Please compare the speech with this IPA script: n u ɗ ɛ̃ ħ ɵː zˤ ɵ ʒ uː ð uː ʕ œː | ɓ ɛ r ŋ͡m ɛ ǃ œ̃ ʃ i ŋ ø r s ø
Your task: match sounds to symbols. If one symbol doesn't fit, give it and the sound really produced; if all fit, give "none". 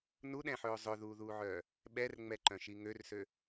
ʒ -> ð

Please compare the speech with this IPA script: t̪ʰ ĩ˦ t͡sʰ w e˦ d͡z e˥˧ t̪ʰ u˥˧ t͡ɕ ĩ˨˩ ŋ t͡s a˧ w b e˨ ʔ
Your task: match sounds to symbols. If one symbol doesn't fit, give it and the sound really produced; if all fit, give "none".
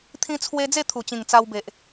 u˥˧ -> u˨˩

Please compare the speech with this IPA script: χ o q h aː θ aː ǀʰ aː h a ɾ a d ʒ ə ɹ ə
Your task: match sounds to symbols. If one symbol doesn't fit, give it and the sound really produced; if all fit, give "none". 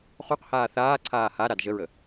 none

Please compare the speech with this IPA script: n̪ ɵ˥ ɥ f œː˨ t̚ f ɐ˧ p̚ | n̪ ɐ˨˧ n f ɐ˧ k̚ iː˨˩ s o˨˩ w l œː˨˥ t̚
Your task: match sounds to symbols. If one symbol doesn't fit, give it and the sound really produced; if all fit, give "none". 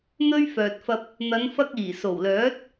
none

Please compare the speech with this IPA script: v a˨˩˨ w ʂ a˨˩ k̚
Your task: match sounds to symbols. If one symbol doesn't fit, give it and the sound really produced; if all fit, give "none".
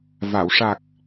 none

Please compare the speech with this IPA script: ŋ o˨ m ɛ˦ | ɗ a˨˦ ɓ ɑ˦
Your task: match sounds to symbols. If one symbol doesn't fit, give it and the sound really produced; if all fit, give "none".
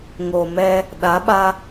ɑ˦ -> a˦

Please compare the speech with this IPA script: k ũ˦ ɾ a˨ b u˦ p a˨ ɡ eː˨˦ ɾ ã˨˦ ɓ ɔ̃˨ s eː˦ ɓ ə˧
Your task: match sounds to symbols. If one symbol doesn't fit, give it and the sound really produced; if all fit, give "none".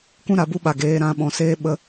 p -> ɓ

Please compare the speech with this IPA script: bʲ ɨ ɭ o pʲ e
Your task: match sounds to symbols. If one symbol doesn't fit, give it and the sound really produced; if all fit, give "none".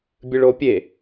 none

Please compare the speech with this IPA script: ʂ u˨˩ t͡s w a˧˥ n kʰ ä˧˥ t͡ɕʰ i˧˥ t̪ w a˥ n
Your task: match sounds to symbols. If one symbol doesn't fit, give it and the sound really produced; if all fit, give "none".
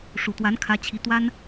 t͡s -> t̪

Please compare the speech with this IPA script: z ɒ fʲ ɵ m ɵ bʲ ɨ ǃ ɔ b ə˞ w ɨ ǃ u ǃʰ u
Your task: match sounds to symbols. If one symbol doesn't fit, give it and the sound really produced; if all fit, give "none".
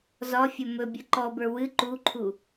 none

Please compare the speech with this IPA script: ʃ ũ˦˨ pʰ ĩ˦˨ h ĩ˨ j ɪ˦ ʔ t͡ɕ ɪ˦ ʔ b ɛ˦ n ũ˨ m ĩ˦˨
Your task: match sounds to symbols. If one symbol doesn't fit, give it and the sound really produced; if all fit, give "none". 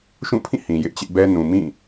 none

